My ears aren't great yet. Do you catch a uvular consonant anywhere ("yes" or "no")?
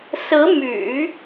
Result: no